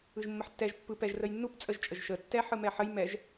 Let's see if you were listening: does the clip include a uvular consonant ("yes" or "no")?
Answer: no